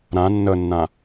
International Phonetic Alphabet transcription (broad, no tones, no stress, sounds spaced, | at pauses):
ɾ ã nː ə nː ã